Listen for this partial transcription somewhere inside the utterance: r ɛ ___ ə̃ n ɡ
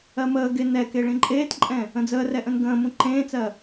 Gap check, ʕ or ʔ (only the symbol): ʔ